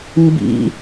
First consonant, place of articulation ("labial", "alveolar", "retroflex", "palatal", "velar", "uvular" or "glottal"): labial